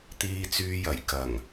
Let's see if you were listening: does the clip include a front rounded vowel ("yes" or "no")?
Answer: yes